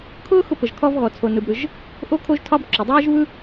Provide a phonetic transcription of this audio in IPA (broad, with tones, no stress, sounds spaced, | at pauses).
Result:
kʰ ʊː˥ x ʊ˥ p ə˩ ʒ kʰ ɔ˥ v ɣ ɔ˩ t͡sʰ o˩ n ɯ˩ b ɾ ɯ˩ ʒ | ʔ o˥ kʰ o˥ ʒ tʰ ɒ˥ b ǁ o˩ dˤ ɯː˥ ʒ β ɯ˥